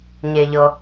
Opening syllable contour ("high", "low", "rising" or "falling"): low